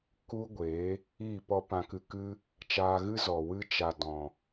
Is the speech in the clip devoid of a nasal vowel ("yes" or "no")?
no